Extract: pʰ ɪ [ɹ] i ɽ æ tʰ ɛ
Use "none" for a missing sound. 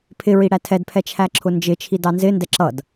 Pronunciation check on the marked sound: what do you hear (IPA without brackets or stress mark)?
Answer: ɹ